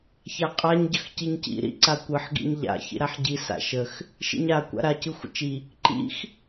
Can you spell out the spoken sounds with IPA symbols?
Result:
ç a qʼ a ɲ ɟ ə x c i ɲ c ḭ ɾ ḭ ǀ a kʷ ɯ ħ ɡ ḭ ɲ ʎ a̰ ç ḭ ɾ a ħ ɟ i s a̰ ʃ ə x | ʃ ḭ ɲ a kʷ a̰ ɾ a c ɯ xʷ ə̰ t͡ʃ i | ǃ ḭ x

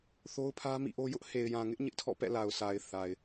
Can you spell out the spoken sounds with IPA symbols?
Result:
θ o˦ ʊ̯ pʰ ä˦ m ḭ˦˨ ʔ o˦ j ʊ˦ ʔ h e˨ ɪ̯ j ã˨ ŋ ɪ˦ ʔ ɲ ɪ˦ ʔ tʰ ɔ̰˦˨ p ɛ̰˦˨ l a˨ ʊ̯ s a˨ ɪ̯ θ a˨ ɪ̯

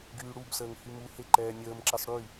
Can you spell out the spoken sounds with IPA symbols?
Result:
ɡ yː ɽ u b s əː ŋ h y m u h e ǃ ɛː nʲ əː m ǁ ɛ sˤ ɽ y

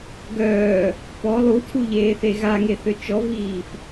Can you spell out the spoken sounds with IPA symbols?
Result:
ɡ œː | p ɔ lˠ u tʰ u ʎ eː θ e ɣ a ŋ e θ ø t͡ʃ ɔ v iː f

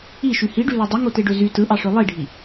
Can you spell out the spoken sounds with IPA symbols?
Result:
i ʃ y h i ɖ y l o dˤ ɯ ŋ o t e ɖ ø z y t ɯ ʔ ɑ ʂ ø lˠ i ɖʱ i

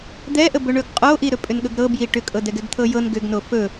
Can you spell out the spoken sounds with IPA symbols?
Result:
d̪ ɛ ʔ ə b ɵ ɳ ɵ ɡ qʼ o ʔ i ɾ ɵ pʼ ʏ n ɠ ɵ ɡ ɾ ɤ b j i ʈ ʏ kʼ ɤ d ɛ ɡ ɛ ɡ t̪ʰ ɤ j ɤ n ɡ ʏ ɡ n o f ɵ

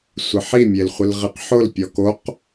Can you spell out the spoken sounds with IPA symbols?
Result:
sʷ ɪ ħ i mʲ e l χʷ ɪ l ʁ i q ħ ʊ l pʲ ɔ k o q

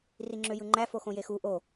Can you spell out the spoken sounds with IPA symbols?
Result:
r i ŋ͡ǁ ø j ɯ ŋ͡ǃ æ f o x õ j e x u ʔ o

